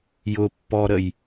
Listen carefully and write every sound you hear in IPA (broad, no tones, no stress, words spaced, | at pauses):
jʊpːɔɾəj